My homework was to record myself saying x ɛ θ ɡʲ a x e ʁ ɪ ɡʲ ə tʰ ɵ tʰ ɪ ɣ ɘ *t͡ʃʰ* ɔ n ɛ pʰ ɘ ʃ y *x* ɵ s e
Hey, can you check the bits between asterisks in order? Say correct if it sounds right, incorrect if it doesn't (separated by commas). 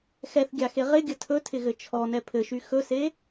correct, correct